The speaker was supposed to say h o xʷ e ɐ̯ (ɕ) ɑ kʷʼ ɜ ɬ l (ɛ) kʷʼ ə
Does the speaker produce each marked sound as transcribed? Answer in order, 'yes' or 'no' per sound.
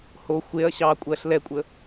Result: yes, yes

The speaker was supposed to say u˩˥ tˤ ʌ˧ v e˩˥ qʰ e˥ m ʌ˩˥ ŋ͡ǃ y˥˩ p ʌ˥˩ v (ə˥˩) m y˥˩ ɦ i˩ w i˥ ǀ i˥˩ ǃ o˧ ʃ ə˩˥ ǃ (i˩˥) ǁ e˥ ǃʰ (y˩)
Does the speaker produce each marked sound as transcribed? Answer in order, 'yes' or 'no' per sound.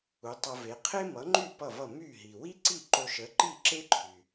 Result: no, no, yes

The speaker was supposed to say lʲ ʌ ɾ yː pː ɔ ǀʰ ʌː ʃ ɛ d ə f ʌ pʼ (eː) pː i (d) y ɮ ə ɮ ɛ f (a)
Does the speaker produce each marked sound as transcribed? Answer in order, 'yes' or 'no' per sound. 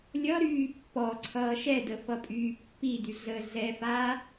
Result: no, yes, no

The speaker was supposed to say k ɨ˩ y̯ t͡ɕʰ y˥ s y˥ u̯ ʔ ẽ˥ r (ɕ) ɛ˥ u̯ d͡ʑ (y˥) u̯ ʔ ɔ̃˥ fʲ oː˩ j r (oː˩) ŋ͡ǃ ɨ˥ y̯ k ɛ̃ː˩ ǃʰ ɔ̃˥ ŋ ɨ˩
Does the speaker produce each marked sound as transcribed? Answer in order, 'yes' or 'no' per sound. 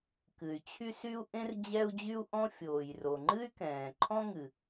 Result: no, yes, no

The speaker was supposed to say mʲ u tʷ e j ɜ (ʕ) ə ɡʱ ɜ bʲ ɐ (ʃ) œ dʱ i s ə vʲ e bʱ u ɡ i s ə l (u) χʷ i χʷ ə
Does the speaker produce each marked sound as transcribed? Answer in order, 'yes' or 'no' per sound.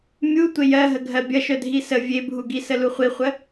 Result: no, yes, yes

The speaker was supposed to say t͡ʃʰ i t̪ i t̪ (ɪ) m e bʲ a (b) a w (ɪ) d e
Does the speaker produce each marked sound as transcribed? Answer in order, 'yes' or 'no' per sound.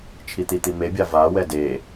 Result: no, no, no

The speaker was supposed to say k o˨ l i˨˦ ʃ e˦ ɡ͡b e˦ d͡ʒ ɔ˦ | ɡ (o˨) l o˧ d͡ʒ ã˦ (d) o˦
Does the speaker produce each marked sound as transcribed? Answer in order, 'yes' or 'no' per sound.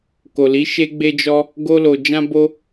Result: no, no

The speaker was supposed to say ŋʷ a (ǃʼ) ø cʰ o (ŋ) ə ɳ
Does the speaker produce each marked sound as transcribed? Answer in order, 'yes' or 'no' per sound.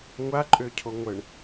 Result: yes, no

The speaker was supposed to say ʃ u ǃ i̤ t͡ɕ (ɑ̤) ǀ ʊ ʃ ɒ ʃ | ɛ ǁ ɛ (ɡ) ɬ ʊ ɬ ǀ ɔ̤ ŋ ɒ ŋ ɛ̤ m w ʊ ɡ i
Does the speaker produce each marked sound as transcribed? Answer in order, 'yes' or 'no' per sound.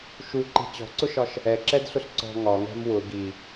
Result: no, no

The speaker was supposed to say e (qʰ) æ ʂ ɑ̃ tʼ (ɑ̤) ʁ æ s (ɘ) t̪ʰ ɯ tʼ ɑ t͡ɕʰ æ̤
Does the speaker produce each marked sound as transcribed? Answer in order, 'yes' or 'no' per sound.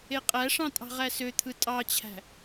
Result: no, yes, no

